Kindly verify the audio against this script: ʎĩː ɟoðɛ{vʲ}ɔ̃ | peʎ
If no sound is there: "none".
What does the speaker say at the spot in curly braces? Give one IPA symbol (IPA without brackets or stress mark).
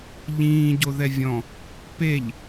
vʲ